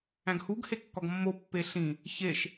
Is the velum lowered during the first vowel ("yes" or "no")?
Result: yes